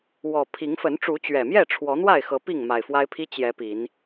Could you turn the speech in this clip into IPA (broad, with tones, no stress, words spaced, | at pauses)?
wɔ˨˩pʰi˨˦ŋ fə˨˦nʈ͡ʂu˨˦t͡ɕɥɛ˨˩mjɛ˥˨ ʈ͡ʂʰwɔ˨˦n̪wa˥˨ɪ̯xɤ˨˦ pi˥˨ŋma˨˩ɪ̯fwa˦ɪ̯pʰi˦ t͡ɕjɛ˨˦ pi˨˦n